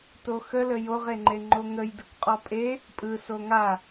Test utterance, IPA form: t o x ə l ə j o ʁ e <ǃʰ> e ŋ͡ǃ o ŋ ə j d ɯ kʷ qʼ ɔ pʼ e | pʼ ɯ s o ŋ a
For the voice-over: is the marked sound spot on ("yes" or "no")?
no